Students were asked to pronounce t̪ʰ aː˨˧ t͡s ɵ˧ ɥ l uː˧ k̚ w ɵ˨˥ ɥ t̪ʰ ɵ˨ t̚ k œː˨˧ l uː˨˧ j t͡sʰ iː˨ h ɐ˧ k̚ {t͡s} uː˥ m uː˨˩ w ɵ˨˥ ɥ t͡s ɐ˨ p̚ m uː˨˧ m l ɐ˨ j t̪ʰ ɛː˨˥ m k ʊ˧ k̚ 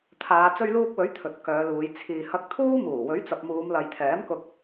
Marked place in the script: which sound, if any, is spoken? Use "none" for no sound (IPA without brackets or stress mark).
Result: t̪ʰ